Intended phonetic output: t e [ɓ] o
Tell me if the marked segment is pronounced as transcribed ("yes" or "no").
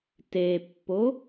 no